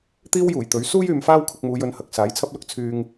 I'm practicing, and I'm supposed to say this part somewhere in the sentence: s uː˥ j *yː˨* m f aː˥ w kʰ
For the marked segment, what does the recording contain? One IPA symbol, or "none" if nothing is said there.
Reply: yː˨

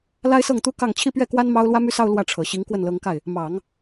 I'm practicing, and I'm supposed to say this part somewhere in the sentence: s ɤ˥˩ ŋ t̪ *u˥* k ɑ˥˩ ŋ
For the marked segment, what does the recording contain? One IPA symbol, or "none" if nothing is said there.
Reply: u˥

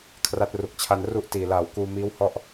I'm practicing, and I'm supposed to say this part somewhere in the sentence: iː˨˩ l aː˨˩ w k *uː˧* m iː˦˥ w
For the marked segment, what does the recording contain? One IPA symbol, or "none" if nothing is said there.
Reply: uː˧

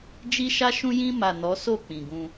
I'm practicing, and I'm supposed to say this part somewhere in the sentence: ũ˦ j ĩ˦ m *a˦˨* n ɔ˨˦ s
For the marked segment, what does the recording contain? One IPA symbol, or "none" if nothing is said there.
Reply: a˦˨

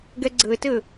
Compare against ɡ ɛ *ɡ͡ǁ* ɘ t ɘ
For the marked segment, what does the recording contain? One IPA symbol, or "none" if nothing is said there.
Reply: ɡ͡ǀ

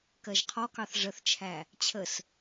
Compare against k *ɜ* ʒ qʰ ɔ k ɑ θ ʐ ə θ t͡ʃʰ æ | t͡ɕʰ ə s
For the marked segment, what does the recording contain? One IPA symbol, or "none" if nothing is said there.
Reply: ɜ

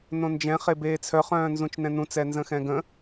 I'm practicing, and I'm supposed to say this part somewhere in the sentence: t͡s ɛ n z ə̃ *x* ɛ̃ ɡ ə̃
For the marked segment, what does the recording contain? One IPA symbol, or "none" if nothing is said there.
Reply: x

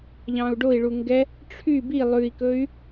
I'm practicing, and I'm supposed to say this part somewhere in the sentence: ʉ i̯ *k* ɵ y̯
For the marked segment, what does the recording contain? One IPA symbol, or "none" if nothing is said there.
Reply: k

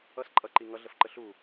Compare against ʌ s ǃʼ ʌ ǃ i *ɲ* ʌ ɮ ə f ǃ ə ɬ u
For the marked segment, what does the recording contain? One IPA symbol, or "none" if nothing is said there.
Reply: ŋ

